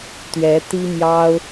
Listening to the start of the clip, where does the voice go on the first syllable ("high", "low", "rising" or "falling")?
rising